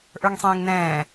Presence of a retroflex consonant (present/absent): absent